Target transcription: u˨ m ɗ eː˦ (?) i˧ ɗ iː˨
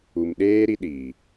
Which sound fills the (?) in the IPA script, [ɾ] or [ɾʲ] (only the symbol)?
ɾ